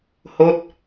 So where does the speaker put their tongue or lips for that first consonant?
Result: throat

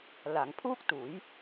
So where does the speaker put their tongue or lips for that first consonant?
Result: tongue tip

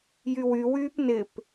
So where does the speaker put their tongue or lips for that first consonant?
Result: palate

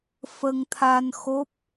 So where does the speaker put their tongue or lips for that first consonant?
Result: lips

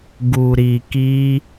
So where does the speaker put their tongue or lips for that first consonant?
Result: velum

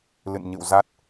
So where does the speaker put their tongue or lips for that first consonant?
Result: tongue tip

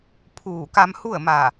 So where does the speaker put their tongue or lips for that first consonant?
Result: lips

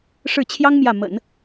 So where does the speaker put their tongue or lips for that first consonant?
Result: retroflex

